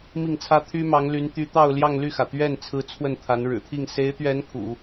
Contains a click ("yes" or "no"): no